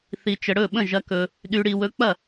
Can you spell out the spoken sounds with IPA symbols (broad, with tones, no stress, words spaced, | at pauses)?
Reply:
θi˨ t͡ʃə˨ɽɵ˥˩ ɓə̃˥˩ʒɐ˨˥kɵ˨ | ɗy˨ɽi˨wɵ˨˥k͡pɐ˥˩